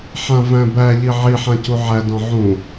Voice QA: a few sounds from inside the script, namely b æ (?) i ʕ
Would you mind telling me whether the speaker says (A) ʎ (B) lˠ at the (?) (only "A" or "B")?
A